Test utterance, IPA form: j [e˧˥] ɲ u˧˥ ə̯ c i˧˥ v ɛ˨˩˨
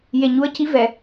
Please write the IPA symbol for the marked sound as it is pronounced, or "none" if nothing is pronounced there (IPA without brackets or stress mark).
e˨˩